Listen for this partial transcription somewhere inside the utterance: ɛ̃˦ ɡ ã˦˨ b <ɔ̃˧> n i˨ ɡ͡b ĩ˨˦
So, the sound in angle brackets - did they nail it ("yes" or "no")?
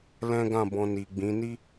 yes